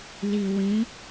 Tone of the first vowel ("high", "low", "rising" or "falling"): low